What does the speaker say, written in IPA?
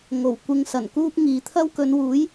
ŋ o˨˩ w kʷ ɪ˧ ŋ s ɐ˨˩ n k uː˥ p̚ ŋ iː˨˧ t̪ʰ ɐ˥ w k ɵ˨˧ n w uː˨˥ j

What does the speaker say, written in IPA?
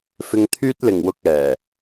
f ɪ˧ ŋ t̪ʰ yː˥ t̚ l ɪ˨˩ ŋ w ʊ˧ k̚ ɛː˨˩

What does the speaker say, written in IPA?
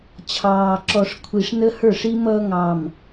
t͡ɕʰ ɑː˨ ǁ ɔ˨ ʂ kʷʰ i˨ ʂ n ə˦ h ə˞˦˨ ʂ i˦ m ʌː˦ ŋ ɑ˨ m

